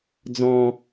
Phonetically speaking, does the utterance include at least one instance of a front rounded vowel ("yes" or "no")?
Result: no